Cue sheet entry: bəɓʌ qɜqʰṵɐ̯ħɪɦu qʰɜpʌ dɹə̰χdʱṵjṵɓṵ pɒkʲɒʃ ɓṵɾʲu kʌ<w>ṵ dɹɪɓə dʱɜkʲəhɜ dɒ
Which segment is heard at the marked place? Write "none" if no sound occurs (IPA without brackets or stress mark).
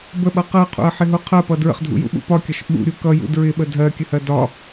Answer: j